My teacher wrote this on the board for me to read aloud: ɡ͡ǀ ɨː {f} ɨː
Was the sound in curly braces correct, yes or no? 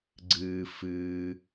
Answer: yes